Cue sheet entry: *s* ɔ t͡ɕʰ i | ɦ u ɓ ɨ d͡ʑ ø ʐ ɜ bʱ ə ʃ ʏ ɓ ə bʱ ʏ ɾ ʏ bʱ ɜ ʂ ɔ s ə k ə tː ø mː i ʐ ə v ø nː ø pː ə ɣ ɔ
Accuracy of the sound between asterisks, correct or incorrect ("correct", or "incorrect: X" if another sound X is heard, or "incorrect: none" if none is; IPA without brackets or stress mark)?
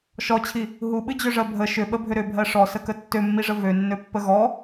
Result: incorrect: ʃ